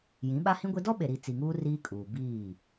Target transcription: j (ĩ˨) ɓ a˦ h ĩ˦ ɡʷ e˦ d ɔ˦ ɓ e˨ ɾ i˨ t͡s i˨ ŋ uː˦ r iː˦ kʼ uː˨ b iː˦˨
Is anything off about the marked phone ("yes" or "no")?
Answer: yes